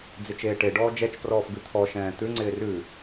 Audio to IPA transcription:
d͡zɪt͡ʃeːʈeɖɔː d͡ʒɛt͡ʃprɔːf ɡʉt̪ʰɔʃɛ̃ː t̪ʉŋ͡ǀɪː rʉ

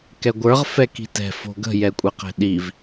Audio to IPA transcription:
kɛɡʷə˞ʁ fɛki̤tɛ̤ fo̤ɡə̤ jɛkʷʼɛqɛ̤ɗiv

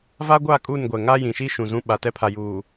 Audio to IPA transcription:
va˦ɡʷa˦˨ kʼu˦˨nɡʷɛ˨ŋa˦ jĩ˨ʃi˦ʃũ˨ zũ˦ ɓa˨tɛ˦pʰa˨juː˨

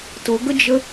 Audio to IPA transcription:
tʊɡəd͡ʒə

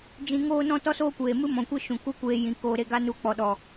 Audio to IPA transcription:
d͡ʒĩ˧ŋoː˦nɔ̃˦ tɔ˦soː˦kʷeː˨mɨ˦ mɔ̃˨kʷe˦ ʃũ˨ ku˦kʷeː˧ jĩ˨ koː˨ɾe˧ ɡa˦nu˧k͡pɔ˨ ɗɔ˨

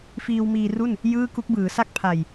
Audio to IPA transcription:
fiː˧w miː˧ru˥˩n | jɯː˥˩ku˦˥k̚ bɯː˩˦ sa˥˩k̚pʰa˨˩j

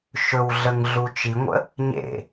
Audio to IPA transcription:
ʃɵwɮəŋɮu t͡ʃiŋʷə̰ | ɲḛ

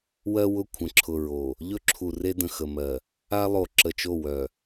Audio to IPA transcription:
wɜ˦wʊ˦˨kʷʰə̃˨ǁʰʊ˨ ɹo˨ | ʎɵ˦ǁʰu˨re˦ də̃˨xə˨mɜ˨ | a˦lˠo˨ ǁə˨t͡ʃo˦˨ wœ˨

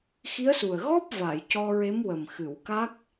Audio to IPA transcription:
xi˧˥ə̯su˨˩ə̯ ɣɔ˦˥p̚ va˨˩˨jcɔ˧ɹe˧˥mwə˨˩m xɨ˨˩˨w ka˦˥k̚

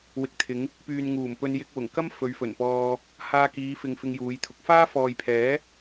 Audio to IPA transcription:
wɪ˨˥k̚t̪ʰɪ˨˧ŋ | pyː˨nŋuː˨˩m pɵ˧n jɪ˧k̚wʊ˨˩ŋkɐ˥m fɵ˨˧ɥfɵ˨˩npɔː˧ | haː˧kiː˨˧fɪ˨ŋ fɪ˧ŋjuː˨˧jt̪ʰʊ˨˥k̚ faː˥ fɔː˨jpʰɛː˨˥

